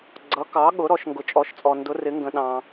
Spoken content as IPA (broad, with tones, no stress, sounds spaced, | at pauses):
ɡ͡ǀ ʌ˩˧ k ɑ˩˧ ɠ ʊ˩˧ ɾ ɔ˩˧ ʃ ŋ ɡ ʊ˩ t͡ʃʼ ɔ˩˧ ʃ t͡sʼ ɔ˩ n d ʊ˩˧ r ɪ˩˧ ŋ ɡ ə̃˩ ɗ ɑ̃˩